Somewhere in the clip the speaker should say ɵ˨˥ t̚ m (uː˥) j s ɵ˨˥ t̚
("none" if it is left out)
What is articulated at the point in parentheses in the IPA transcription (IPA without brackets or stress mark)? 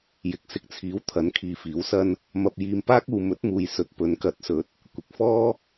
uː˨